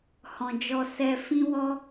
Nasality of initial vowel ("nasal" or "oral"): nasal